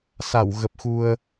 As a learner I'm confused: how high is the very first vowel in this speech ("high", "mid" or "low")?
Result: low